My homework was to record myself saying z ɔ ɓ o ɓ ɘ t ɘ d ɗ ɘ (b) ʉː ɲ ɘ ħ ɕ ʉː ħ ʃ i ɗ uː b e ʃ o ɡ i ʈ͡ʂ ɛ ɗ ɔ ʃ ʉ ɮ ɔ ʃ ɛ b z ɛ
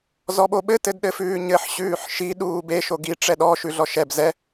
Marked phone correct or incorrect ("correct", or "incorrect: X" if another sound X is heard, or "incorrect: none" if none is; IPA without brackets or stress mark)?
incorrect: f